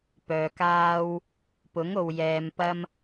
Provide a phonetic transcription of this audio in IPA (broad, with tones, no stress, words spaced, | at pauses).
pœː˨kaː˧w | pʊ˨˥ŋ o˨wjɛː˨mpɐ˧m